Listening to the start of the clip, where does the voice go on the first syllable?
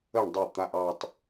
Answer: falling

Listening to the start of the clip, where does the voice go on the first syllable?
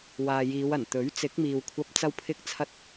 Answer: low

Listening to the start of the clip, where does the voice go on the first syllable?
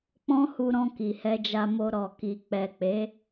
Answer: high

